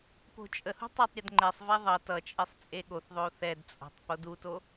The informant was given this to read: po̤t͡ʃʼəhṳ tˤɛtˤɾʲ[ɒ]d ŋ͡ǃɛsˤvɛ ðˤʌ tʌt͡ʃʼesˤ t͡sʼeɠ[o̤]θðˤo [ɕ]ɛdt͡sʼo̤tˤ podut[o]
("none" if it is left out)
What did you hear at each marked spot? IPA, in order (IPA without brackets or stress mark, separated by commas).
ʌ, o, θ, o